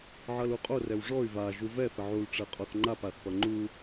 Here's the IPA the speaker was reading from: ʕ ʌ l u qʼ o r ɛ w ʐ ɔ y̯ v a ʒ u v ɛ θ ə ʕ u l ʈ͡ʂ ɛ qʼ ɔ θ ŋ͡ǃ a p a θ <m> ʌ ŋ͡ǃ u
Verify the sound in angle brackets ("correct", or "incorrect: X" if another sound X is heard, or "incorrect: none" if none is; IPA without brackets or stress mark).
incorrect: p